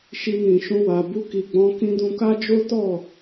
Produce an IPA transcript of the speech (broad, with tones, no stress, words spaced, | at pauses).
ʃi˧nĩ˨ʃũ˧wa˨ bu˧ki˨ɡ͡bɔ̃˨˦ kĩ˧dũ˧ka˦ d͡ʒo˦tɔ˦˨